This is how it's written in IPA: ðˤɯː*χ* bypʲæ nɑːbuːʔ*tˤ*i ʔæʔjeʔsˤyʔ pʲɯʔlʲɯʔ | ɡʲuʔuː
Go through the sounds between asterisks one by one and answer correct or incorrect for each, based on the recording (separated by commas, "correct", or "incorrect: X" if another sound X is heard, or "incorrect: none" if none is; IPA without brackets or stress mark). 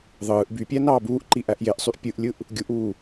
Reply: incorrect: ʔ, incorrect: ǃ